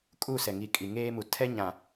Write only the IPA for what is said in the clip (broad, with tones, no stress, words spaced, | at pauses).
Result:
kʼu˦˨sɛ˨ ŋi˨ kʼi˨ŋeː˦mu˨ tʰɛ˦ ɲã˨